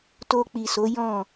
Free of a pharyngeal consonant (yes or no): yes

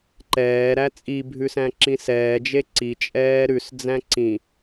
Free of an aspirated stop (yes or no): yes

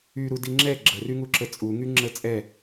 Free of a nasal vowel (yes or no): yes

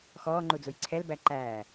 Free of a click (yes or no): no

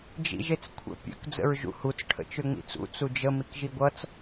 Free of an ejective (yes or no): yes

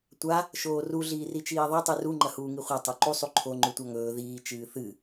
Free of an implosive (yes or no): yes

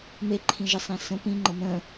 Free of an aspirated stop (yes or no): no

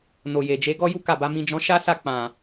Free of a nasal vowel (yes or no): no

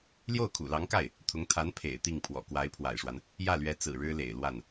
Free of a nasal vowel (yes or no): yes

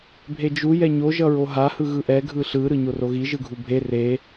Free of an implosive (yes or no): yes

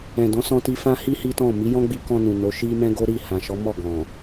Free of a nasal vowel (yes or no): no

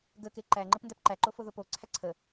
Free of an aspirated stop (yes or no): no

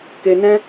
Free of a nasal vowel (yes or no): no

